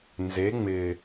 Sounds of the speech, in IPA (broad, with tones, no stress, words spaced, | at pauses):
nze˨˥ ŋ͡mɪː˨˩